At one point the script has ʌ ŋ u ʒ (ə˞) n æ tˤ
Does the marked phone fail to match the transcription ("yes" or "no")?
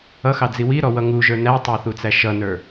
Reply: no